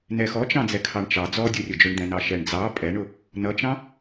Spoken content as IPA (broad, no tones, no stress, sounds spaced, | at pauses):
n ɛ x ɔ t͡ʃ ɑ̃ d͡z ɛ kʰ ɑ ɳ t͡ʃ ɑ d͡z ɔ dʲ u rʲ ʊ d͡ʒ ʊ ɳ d̪ ɛ̃ n ɑ ʃ ɛ ɳ d͡z ɑ pʼ ɛ ɳ ʊ | n ʌ t͡ʃ ɑ̃